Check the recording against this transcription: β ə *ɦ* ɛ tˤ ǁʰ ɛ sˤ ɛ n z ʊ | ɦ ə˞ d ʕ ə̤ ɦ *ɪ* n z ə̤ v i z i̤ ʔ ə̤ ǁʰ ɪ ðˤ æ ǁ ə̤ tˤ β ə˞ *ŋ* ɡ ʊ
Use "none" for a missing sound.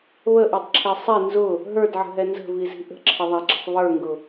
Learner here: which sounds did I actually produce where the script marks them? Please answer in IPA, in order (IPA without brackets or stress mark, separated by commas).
ʔ, ɛ, ŋ